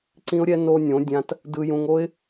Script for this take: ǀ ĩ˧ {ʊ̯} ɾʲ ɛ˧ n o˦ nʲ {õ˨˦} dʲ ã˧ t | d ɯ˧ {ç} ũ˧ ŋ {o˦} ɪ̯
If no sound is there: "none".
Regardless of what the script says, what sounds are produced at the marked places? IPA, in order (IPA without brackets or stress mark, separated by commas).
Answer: ʊ̯, õ˨˦, j, o˦